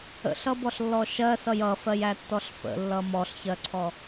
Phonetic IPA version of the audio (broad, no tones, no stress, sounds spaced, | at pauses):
ə̰ ɬ ʌ b ɔ ɬ lː ɔ ʃ ɜ s ʌ j ʌ f ɜ j æ tː ɔ ɬ f ə̰ lː ʌ m ɔ ɬ ç ɜ ǀʰ ɔ